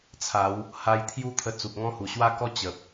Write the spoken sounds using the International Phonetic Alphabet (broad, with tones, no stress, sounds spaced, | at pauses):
t͡sʰ a˨˦ w | h a˧ j t̪ʰ j u˦ t̪ʰ ə˧ t͡s u˨ p̚ ŋ ɔ̃˦ h u˨˩ ɕ w a˦ k ɔ˦ t͡ɕ ə˨ p̚